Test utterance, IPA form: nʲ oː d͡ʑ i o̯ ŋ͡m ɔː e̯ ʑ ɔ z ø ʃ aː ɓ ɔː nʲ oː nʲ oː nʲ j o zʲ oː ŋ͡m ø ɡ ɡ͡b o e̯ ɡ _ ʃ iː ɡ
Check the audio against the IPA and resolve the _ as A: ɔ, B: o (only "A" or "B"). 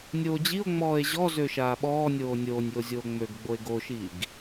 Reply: B